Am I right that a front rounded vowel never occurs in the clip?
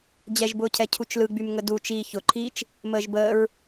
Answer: no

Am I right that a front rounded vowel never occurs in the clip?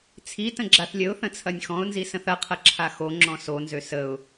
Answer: no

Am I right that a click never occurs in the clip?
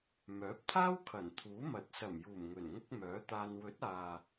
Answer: yes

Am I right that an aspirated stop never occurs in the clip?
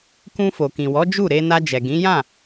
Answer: yes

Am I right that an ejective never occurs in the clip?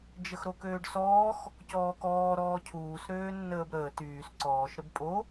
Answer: no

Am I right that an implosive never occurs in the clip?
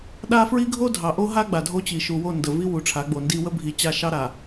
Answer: no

